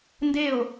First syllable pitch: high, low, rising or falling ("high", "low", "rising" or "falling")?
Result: falling